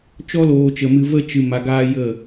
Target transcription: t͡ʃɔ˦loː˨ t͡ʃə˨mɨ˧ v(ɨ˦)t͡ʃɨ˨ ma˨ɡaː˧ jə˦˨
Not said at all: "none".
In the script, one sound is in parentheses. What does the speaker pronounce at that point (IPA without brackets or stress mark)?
ə˦